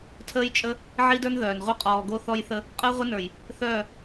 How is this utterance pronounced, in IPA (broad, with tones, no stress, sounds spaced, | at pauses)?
tʰ əː˦ j t͡ʃʼ ə˦ | ʕ i˦ d ə˞˦ n ð œː˨ n ʁʷ œ˦ qʼ ɔː˨ ɡ o˦ θ ɔ˦ j θ ə˦ | qʼ əː˦ ʁʷ ɘ˦ n ə˞˨ j | θ œː˦˨